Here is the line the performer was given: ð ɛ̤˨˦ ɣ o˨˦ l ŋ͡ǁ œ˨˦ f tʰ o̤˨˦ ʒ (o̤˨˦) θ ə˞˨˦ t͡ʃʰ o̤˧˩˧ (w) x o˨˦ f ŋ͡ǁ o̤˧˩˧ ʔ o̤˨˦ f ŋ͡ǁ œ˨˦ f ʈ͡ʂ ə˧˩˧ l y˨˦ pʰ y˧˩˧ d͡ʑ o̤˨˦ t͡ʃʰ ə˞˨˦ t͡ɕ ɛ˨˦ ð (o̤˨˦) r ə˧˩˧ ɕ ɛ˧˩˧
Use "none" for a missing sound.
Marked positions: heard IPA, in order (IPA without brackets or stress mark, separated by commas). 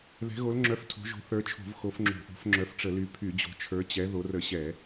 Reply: o̤˨˦, v, o˨˦